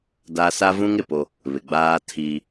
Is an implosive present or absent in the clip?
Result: absent